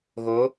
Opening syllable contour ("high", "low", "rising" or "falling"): rising